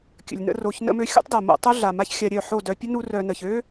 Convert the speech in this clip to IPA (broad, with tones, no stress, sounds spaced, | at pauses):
kʲ ə̰˨ lʲ n ə̰˧ r o˨ ç n ə̰˧ m ø˧ xʲ o̰˦ tˤ d a˨ m o̰˧ tˤ o˦ ɮ a˨ m a˦ ç xʲ a˧ ɾʲ œ˦˨ ħ o˦˨ d œ˧ pʲ ə˦ n u˦ r œ˧ n ə˨ ç ø˦